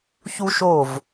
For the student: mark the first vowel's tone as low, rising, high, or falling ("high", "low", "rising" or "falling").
high